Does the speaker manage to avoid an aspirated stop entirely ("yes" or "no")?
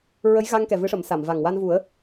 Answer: yes